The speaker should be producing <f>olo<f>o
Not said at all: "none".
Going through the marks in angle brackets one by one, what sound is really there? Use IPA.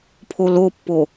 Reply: pʰ, pː

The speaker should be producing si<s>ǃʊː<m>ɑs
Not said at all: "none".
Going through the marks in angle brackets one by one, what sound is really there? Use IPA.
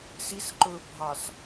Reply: s, bʱ

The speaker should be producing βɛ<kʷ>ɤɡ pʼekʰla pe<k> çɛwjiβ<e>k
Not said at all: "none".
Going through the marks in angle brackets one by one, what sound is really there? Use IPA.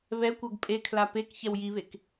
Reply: kʷ, k, e

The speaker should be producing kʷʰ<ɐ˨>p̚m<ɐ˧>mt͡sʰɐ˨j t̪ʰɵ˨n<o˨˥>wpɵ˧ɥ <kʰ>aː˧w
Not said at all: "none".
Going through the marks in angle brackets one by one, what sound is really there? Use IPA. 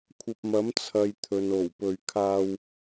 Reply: ɐ˨, ɐ˨˥, o˨˩, kʰ

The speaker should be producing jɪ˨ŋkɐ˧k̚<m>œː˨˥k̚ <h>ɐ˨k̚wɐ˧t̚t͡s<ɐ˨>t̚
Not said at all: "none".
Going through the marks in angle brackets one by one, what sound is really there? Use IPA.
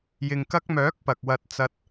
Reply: m, p, ɐ˧

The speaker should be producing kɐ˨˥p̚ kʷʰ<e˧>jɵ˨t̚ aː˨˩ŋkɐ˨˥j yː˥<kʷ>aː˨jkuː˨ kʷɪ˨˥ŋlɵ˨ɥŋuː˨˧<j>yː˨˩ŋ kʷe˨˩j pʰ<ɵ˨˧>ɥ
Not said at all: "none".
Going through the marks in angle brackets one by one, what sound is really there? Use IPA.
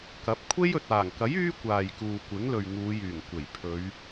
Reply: e˥, kʷ, j, ɵ˨˧

